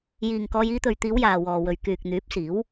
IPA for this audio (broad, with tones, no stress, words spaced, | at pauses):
jiː˨ŋkɔː˧j iː˧t̪ɵ˨ɥt̪iː˨˧w jaː˨wɔː˨wɵ˨ɥ kyː˨k̚n̪yː˨˥p̚siː˨˥w